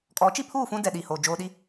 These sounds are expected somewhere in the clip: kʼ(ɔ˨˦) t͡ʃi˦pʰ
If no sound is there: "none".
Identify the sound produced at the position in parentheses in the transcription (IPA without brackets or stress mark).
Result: ɔ˨˦